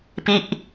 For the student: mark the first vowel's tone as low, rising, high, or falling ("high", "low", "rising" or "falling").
falling